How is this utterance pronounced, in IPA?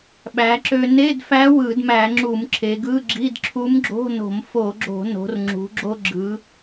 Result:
ɓ æ˩˧ ǁ ø˧ n e˧˥˧ d f æ˧˥ w ɯ˧˩˧ d m æ˧˩˧ ŋ͡ǁ u˧˩˧ m ǁʰ e˩˧ ɡ ɯ˧˥˧ ɡ͡ǁ i˧˥˧ d ǁʰ u˧˥ m ɡ͡ǁ o̤˧˥˧ n o̤˧˩˧ m f o˧˩˧ ɡ͡ǁ o̤˧˩˧ n o̤˩˧ r ŋ͡ǁ ṳ˩˧ ɡ͡ǁ o˧ ɡ͡ǁ ɯ˩˧

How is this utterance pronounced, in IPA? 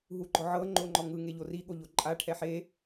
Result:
ɦ u ɡ͡ǃ ɔ ʕ ɤ ŋ͡ǃ o ŋ͡ǃ ɔ ŋ ɯ ŋ e ʎ o r i ɠ o ʎ o ǃʼ a ʈʰ ɛ ħ e

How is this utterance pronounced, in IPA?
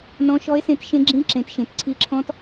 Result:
n ɔ̃˦˥ ʃ ɔ˦˥ e̯ s ẽ˦˥ t ʃ ẽ˦˥ ɡ͡ǁ ĩ˦˥ ǁ ẽ˨˦ t ʃ ẽ˨˦ t ǀʰ i˦˥ ǁʰ ɔ̃˦˥ t

